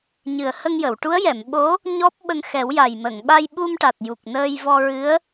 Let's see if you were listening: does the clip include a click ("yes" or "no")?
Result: no